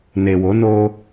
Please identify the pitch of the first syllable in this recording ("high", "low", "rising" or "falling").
low